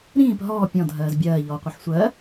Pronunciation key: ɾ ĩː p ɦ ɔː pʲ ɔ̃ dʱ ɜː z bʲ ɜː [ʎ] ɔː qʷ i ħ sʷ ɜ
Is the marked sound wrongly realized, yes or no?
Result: no